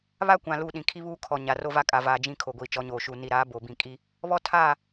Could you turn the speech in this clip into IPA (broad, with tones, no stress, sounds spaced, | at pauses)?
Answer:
β a˦ kʷ ã˨ l u˦˨ ɗ ĩ˨ kʰ i˦ β uː˦ kʰ ɔ˨ ɲ a˨ r o˦ v a˦ kʼ a˨ v aː˨ d͡ʒ ĩ˦˨ kʰ o˨ ɡʷ iː˨ t͡ʃ ɔ˨˦ ɲ oː˨ ʃ u˨ n i˨ ɾ aː˨˦ b o˨ b ĩ˨ kʼ i˦ | β ɔ˦ tʰ aː˦˨